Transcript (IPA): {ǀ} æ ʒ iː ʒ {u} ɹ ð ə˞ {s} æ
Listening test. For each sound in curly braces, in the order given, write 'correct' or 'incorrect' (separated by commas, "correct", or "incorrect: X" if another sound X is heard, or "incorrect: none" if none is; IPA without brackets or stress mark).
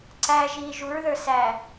correct, correct, correct